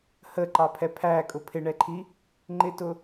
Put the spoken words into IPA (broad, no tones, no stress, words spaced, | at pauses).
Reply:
həǃɑpʰɛ pʰækʼʊ pʰɪɳɛǃʰi | ŋ͡ǃɪtʊ